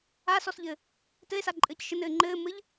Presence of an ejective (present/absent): present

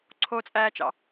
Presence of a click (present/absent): present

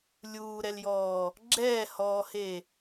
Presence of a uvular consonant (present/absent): absent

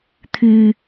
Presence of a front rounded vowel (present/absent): present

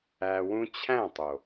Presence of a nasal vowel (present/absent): present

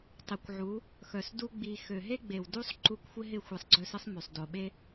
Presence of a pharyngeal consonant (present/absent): present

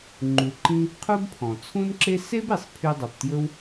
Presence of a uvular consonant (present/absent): present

